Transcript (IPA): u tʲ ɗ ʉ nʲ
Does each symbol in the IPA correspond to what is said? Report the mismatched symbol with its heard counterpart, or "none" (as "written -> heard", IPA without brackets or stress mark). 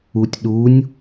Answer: ʉ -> u